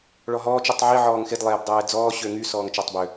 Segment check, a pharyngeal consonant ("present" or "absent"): present